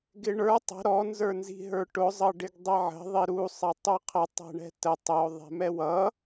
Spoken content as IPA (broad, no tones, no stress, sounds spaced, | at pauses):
ɡ ɪ ɳ ə˞ tˤ ə̤ ɾ ɔ n z ə˞ n z i̤ ɦ ə˞ ʈ ʊ zˤ ʌ ɖ ɪ ɡ dˤ ɛ ʕ ə̤ ðˤ i ɾ u sˤ ɛ tˤ u qʰ ə tˤ ɛ̤ ɳ ɛ̤ t ə tˤ ə ʊ̯ ðˤ ɛ̤ m ɛ w ʌ